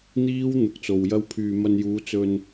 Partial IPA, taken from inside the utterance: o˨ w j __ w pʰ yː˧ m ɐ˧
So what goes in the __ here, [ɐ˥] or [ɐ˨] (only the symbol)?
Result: ɐ˥